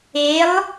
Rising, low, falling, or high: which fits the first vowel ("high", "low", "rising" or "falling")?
rising